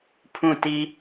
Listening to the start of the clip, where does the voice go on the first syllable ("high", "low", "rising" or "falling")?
falling